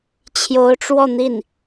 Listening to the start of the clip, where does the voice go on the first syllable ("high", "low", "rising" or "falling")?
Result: rising